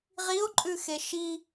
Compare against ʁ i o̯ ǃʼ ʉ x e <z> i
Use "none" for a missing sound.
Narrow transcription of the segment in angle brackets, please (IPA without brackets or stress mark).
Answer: ʃ